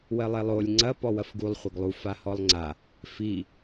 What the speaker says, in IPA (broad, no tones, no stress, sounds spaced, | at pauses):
w ɜ lˠ e lˠ o lʲ ŋ͡ǀ ɐ p ɔ w ɐ f ɡ u lˠ χʷ ɐ ɡ lˠ u f a h ɔ lˠ ŋ͡ǀ a | f i